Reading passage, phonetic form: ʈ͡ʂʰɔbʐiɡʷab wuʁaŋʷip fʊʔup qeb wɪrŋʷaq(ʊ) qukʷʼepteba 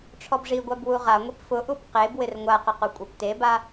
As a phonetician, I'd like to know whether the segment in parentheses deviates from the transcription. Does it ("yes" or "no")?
no